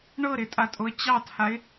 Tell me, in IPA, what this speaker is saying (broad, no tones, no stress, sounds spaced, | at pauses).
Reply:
ɳ ɤ ɾ ɪ tʼ a tʼ o ə̯ t͡ɕ ɑ tʰ a ɪ̯